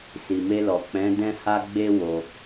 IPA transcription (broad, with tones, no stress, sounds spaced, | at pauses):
s i˨ m e˧ l ɔ˨ k͡p ɛ̃˨˦ d ɛ̃˦ h a˦ ɡ͡b e˦ w o˧